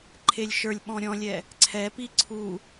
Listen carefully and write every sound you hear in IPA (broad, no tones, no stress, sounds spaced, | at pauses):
ǃʰ e lʲ ʃ ə˞ lʲ ɓ ɔ̃ ɾʲ ɔ̃ lʲ ɛ | ǀʰ ɛ p i ǀʰ u